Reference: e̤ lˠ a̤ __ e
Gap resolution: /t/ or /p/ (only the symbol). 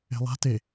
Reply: t